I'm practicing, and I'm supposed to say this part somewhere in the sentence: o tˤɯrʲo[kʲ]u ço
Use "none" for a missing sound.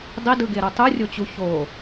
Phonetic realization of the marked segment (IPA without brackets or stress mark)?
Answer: t͡ɕ